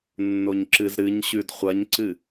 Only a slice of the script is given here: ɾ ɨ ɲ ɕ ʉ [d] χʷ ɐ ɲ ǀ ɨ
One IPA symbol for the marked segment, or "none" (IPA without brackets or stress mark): d